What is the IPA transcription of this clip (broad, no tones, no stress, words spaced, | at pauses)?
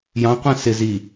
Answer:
jɑ̃qʷæ̃ sɪ zi